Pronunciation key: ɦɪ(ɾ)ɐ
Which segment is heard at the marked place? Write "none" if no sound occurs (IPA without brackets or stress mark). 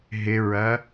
ɹ